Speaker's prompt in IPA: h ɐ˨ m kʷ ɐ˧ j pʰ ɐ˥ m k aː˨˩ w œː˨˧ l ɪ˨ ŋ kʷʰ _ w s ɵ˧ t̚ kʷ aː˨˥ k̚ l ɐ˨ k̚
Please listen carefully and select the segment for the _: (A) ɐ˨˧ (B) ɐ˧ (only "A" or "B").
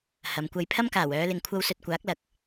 B